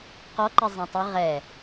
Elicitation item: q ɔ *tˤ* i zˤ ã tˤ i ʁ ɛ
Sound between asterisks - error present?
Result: yes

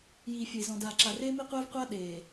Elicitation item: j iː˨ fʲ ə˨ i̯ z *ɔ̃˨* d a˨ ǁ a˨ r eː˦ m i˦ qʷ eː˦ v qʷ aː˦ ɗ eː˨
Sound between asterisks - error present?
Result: no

